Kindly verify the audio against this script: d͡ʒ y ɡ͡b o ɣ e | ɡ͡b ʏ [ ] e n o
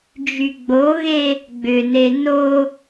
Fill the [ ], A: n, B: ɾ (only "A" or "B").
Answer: A